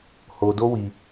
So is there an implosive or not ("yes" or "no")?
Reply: no